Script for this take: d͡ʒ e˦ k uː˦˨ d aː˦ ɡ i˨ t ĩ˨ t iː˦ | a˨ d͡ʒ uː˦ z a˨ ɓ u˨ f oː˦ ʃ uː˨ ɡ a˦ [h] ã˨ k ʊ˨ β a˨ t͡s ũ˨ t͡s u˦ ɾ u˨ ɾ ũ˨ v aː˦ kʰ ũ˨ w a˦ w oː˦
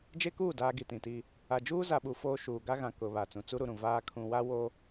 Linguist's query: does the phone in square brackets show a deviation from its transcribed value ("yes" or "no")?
yes